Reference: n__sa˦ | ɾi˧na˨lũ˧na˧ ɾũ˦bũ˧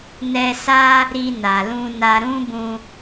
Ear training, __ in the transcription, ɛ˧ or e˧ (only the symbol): ɛ˧